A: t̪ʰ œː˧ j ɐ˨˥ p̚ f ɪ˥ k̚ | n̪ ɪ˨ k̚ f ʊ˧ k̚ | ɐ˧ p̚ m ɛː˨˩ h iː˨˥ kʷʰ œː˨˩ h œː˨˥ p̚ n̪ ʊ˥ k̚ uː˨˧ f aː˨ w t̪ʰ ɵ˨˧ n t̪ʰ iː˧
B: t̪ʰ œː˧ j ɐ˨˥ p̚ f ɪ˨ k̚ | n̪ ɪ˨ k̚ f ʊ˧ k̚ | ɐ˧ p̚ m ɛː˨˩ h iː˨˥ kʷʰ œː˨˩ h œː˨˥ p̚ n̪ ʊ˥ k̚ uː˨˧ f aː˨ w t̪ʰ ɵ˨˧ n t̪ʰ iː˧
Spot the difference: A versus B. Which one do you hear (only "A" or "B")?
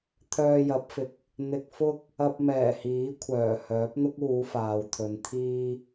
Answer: B